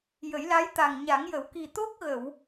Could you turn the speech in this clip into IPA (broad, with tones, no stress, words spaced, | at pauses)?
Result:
jə˨˩˦jla˧˥jt̪a˨˩ŋ ɲa˨˩˦ŋjə˨˩˦wki˨˩ t̪o˦˥k̚ɣə˨˩˨w